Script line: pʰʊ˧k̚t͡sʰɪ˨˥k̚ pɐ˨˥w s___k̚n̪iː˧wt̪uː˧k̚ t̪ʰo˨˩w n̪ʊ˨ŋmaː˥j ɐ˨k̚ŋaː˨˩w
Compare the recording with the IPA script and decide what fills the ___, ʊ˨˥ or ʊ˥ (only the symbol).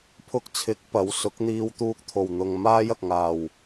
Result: ʊ˨˥